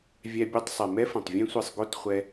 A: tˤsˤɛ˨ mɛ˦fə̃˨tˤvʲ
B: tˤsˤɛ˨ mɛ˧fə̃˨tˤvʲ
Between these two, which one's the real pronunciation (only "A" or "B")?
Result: A